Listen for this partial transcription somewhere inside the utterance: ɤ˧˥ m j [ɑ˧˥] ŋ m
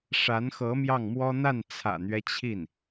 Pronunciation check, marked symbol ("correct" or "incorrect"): incorrect